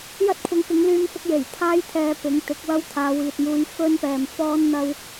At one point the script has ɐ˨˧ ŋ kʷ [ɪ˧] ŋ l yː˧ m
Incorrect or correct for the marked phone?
incorrect: ɪ˨˥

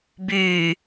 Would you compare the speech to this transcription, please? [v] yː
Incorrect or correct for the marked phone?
incorrect: b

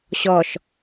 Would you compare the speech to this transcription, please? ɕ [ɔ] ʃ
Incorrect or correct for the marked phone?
correct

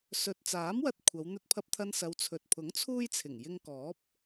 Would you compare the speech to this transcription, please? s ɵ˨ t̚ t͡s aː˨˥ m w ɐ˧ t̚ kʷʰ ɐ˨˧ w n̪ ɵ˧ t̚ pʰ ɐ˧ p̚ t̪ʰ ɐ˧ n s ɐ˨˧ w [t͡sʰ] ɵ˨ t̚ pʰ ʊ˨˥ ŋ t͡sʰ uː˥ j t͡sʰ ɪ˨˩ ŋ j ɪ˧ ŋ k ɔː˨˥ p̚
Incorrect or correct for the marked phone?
correct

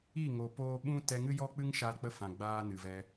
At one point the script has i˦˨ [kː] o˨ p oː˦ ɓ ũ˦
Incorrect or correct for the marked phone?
incorrect: ŋ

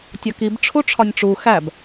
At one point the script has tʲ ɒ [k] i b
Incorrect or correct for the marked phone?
correct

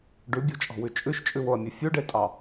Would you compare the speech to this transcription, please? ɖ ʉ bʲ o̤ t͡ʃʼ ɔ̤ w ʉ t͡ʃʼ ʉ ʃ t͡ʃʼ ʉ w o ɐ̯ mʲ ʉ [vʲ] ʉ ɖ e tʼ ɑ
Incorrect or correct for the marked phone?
incorrect: fʲ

